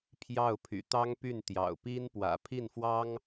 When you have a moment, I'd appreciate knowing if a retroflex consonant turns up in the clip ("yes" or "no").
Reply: no